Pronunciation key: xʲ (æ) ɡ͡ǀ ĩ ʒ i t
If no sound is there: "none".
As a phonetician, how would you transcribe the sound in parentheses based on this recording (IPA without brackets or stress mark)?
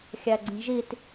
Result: æ